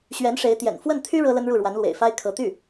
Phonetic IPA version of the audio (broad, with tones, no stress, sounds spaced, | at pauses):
ɕ ɥ ɛ˧˥ n ʂ e˧˥ ɪ̯ t̪ j ɛ̰˨˩ n f w ə˥˩ n t̪ʰ y˥ ɻ ɤ˥ l ə˥ n ɻ u˥˩ ɻ w a˧˥ n l w ḛ˨˩ ɪ̯ f a˥ ɪ̯ kʰ ɤ˧˥ t̪ y˥˩